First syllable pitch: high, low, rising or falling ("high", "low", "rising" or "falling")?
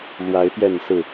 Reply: rising